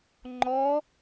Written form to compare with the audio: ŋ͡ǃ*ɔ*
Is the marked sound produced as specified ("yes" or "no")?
yes